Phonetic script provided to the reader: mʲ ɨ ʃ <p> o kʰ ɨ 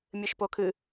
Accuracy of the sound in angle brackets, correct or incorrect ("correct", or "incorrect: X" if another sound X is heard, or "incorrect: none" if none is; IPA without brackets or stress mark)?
correct